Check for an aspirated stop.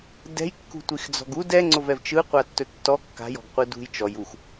absent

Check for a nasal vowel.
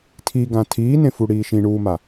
present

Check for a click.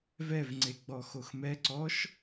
present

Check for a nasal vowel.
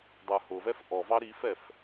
absent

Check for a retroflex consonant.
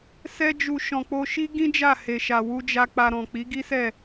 absent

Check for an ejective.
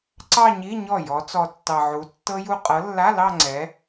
present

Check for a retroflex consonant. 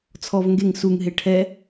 present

